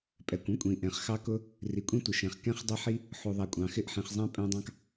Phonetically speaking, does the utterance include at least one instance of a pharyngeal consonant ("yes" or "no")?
yes